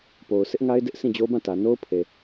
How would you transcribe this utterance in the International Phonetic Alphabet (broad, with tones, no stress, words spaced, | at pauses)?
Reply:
po˨ʊ̯ sɪ˦ʔŋa˦ɪ̯ dɪ˦ʔ sʰĩ˦˨d͡ʑo˦bã˦˨tä˨ no˦ʊ̯pʰe˨